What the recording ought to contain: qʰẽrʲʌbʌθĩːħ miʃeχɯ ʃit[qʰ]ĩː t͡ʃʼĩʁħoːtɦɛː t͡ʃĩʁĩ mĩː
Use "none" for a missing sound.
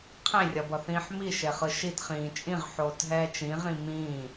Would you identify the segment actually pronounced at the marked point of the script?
χ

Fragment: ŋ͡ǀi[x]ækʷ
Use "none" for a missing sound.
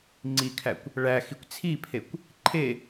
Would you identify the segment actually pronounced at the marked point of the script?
kʰ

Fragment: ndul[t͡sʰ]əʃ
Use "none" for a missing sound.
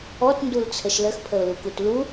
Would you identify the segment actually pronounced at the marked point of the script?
t͡sʰ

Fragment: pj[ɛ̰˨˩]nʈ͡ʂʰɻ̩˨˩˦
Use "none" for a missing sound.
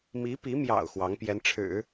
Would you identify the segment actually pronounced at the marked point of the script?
ɛ˧˥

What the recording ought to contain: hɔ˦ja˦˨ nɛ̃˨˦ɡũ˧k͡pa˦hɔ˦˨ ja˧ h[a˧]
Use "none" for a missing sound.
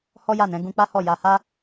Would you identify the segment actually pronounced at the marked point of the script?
a˧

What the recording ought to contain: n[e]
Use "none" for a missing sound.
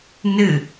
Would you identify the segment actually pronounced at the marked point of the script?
ɨ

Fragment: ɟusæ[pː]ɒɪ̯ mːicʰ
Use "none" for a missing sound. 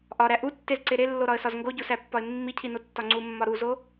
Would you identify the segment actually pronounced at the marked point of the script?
pː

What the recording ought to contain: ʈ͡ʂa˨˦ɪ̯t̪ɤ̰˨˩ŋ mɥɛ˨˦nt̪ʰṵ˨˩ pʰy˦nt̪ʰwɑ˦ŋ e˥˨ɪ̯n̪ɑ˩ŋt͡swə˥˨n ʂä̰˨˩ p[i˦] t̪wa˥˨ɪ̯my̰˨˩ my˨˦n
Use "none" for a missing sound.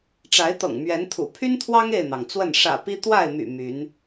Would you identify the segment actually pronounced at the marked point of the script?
i˦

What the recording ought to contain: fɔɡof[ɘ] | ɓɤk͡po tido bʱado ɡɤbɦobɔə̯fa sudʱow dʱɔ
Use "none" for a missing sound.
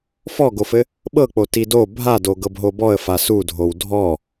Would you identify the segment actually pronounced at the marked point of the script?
ɘ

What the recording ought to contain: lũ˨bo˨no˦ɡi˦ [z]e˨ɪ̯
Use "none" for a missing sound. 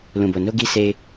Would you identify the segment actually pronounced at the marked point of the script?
s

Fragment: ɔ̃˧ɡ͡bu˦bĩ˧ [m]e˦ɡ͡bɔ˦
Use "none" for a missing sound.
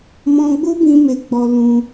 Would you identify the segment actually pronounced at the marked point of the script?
m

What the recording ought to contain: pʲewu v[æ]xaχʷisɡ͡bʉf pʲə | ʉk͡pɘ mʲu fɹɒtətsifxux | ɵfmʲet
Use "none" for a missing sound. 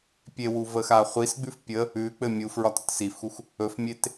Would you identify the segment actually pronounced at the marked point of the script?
ə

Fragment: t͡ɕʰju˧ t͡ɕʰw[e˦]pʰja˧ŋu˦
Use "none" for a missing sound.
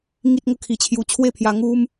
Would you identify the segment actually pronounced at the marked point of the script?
e˥˧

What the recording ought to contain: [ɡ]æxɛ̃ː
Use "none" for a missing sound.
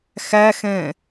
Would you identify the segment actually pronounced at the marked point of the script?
x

